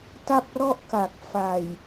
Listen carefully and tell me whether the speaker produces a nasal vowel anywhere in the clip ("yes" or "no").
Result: no